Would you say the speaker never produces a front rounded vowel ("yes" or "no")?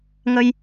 yes